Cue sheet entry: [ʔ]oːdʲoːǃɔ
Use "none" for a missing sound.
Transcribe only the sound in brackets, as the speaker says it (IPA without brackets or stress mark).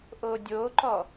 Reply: ʔ